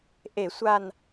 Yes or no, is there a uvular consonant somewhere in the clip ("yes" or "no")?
no